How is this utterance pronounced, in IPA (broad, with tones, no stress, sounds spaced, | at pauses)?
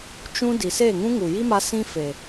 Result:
t͡ʃ ũ˦ d i˨ s eː˦˨ ŋ ũ˦ ŋ u˨ j i˦ m a˧ s ĩ˦ f e˨